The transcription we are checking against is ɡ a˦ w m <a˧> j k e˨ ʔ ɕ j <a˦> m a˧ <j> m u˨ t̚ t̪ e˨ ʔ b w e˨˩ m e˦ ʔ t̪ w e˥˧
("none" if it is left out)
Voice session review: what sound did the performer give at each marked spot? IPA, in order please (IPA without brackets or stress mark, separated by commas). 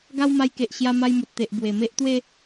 a˧, a˧, j